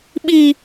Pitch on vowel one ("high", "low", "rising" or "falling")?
high